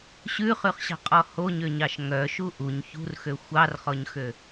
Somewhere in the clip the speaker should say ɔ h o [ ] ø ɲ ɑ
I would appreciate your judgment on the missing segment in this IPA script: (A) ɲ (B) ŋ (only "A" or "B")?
A